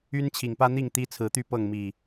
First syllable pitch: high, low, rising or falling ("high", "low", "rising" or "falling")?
high